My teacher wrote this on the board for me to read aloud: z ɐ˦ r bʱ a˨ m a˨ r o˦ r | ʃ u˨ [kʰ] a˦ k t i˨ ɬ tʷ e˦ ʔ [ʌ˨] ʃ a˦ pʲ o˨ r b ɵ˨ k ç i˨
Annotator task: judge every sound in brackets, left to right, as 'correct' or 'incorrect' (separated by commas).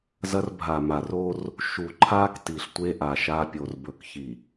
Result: incorrect, incorrect